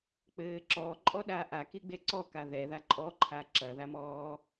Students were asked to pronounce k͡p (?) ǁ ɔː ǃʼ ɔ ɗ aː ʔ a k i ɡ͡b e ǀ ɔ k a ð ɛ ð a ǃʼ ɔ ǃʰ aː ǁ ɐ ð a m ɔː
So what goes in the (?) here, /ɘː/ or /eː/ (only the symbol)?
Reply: ɘː